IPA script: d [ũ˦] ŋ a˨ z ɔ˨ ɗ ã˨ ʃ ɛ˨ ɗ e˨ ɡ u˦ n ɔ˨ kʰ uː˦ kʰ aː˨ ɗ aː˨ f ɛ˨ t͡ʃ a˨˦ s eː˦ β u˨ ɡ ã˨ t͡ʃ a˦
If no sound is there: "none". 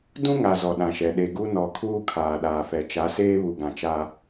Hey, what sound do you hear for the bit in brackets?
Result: ũ˦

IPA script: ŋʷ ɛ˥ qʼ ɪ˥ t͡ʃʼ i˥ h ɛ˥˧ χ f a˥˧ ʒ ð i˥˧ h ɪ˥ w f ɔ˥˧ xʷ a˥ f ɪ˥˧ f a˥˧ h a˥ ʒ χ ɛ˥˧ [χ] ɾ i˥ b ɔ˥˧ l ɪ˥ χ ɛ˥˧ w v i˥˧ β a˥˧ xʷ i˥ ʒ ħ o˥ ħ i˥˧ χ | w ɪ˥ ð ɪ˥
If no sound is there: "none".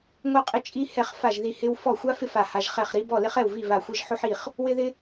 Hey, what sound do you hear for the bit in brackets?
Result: χ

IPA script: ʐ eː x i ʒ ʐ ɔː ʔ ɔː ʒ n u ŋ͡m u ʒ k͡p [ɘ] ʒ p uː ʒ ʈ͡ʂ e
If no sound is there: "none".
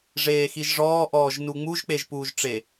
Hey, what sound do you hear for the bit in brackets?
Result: e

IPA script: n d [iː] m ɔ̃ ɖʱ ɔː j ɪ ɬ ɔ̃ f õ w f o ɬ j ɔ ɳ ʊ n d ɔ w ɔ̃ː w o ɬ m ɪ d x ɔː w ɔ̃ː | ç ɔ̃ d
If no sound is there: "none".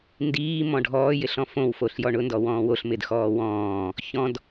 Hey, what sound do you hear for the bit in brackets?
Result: iː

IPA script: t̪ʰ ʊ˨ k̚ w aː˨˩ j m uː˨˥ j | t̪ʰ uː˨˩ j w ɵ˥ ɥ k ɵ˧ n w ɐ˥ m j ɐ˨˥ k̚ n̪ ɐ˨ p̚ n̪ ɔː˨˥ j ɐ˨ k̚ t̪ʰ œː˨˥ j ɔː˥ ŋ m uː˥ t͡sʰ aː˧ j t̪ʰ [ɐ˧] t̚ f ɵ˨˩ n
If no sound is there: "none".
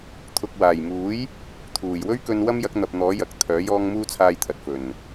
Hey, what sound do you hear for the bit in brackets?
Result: ɐ˨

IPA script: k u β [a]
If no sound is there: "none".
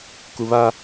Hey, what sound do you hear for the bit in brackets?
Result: a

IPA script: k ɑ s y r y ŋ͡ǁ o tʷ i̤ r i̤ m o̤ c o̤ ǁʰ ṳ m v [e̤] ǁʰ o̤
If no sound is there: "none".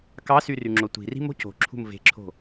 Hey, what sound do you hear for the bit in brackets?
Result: e̤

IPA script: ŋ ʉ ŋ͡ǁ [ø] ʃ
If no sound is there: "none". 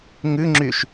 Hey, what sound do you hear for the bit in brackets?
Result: y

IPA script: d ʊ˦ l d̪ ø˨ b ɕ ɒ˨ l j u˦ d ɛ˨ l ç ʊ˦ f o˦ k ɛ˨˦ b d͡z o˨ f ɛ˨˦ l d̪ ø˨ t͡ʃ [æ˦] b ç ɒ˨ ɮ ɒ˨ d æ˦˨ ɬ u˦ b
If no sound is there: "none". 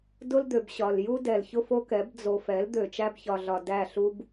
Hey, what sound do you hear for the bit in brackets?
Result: æ˦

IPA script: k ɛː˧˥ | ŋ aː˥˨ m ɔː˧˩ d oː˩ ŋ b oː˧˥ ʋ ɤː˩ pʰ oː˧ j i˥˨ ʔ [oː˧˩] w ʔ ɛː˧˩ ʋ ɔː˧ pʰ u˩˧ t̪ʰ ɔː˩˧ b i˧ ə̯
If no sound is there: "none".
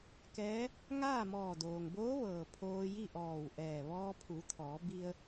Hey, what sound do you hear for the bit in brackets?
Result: ɔː˧˩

